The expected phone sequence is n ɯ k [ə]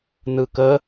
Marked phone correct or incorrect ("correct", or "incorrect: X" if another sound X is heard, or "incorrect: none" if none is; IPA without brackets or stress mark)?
correct